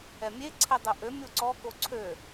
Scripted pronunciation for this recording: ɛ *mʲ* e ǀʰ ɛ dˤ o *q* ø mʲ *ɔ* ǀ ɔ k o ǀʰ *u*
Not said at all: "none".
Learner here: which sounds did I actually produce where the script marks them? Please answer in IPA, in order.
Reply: mʲ, ʔ, o, ø

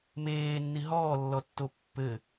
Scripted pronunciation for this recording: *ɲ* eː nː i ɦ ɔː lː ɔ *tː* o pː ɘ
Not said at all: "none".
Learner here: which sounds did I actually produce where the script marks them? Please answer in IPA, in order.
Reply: m, tː

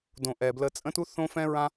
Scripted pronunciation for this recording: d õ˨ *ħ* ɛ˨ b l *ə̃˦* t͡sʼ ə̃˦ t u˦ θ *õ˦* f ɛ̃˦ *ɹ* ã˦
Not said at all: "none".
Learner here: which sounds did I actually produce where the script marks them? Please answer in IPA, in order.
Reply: ʔ, ə˦, õ˦, ɹ

